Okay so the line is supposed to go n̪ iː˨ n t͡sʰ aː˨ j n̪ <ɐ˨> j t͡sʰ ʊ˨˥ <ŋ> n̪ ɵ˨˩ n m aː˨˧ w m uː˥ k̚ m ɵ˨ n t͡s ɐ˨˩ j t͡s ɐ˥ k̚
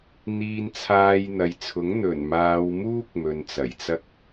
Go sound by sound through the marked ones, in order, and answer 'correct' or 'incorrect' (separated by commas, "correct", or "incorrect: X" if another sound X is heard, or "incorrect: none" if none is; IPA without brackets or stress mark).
correct, correct